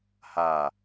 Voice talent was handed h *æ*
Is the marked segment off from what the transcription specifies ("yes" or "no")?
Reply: yes